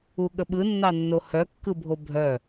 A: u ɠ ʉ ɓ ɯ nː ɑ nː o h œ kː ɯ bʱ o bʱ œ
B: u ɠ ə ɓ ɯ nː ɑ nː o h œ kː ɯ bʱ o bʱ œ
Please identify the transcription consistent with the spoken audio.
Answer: B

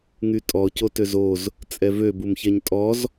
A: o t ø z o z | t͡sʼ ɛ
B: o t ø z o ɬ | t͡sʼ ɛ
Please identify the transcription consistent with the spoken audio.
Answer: A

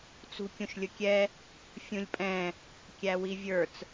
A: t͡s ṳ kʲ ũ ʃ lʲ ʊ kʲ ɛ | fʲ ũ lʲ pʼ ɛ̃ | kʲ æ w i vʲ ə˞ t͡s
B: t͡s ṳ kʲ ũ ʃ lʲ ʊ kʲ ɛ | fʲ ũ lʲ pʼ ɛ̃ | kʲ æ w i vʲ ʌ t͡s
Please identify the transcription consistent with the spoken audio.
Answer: A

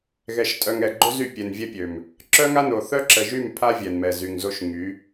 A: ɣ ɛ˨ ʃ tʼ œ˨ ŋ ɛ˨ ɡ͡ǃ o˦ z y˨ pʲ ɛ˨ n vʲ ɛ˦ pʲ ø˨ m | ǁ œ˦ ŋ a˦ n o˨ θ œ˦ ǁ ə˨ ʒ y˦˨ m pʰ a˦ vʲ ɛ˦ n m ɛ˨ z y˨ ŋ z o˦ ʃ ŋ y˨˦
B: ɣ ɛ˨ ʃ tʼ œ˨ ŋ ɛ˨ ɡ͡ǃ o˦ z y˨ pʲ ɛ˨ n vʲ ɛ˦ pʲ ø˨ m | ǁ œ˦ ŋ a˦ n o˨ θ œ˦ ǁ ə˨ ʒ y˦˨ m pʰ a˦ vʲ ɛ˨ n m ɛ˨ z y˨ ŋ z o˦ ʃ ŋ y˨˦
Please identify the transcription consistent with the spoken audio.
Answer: B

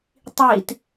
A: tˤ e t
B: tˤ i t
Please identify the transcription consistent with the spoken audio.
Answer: B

